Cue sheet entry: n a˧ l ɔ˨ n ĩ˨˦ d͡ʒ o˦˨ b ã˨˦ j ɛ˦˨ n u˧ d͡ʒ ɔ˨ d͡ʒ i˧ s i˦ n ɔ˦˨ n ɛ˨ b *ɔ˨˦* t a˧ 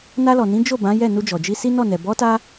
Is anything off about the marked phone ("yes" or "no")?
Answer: no